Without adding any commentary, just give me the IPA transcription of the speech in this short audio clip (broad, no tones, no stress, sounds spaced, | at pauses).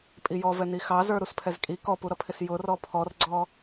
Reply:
pʼ i j ɔ v ɛ n i x ɑ z ə˞ ɾ u s pʰ ɛ z kʼ i k ɔ p u ɾ ʌ pʰ ɪ s j ʊ r ɔ pʰ ɔ r ɡ͡ǀ ɔ